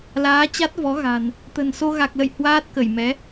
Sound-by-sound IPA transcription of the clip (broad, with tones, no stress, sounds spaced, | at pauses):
l aː˨˦ t͡ɕ a˦˥ t̚ v ɔ˨˦ ɣ a̤˨˩ n | t̪ ə̤˨˩ n s o˧ ɣ a˨˩ k̚ l ə̰˧˨ j h w aː˦˥ t̚ k ə˧˩ j m ɛ˨˦